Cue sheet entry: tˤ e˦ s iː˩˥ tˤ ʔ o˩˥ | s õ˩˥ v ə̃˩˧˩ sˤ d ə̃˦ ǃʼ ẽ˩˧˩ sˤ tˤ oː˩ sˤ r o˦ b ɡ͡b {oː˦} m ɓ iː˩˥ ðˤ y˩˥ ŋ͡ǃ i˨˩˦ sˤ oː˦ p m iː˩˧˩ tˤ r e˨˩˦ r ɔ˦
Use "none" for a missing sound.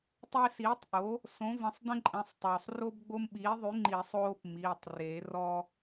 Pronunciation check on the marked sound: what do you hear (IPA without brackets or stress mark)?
o˦